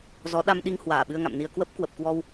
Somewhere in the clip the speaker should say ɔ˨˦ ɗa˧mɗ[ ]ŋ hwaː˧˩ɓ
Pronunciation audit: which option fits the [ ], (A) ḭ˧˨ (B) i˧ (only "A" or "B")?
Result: B